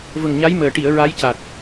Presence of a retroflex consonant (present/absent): present